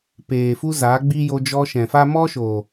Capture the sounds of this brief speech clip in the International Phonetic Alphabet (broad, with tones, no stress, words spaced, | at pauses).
peː˨fu˧ zaː˨˦ɡ͡bi˦ jo˧d͡ʒɔ˧ʃɛ̃˨fa˦ mɔ˦ʃo˨